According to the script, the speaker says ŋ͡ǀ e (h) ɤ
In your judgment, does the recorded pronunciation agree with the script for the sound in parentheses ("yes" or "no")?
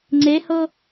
yes